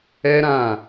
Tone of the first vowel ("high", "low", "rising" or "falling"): high